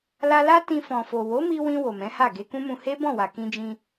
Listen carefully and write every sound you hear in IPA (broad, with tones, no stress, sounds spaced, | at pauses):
l a˧ l a˦ t ĩ˧ f ɔ̃˨ f o˨ w o˨˦ m i˧ w ĩ˧ w o˨ m ɛ̃˨˦ h a˦˨ ɡ e˧ k ũ˦ m ũ˧ h e˦ b ɔ̃˦˨ w a˨ k ĩ˧ d͡ʒ ĩ˧